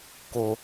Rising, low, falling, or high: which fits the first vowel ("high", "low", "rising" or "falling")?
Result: high